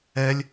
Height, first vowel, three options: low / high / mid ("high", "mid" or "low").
mid